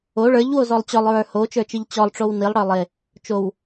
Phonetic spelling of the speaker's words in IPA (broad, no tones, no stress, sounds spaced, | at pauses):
o ɭ ə˞ ʎ w o z ɔ lˠ t͡ɕ ɔ lˠ ɹ ə˞ h o t͡ʃ ə˞ t͡ʃ i ʎ t͡ɕ ɔ lˠ ʈ͡ʂ o w n i lˠ ɽ ə˞ lˠ e | t͡ʃ o w